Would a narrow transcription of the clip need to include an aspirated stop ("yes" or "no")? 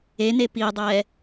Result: no